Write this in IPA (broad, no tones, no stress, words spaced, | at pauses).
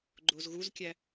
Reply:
ɡ͡ǃozɣuzkʲæ